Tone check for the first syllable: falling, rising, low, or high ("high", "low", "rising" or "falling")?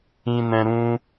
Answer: high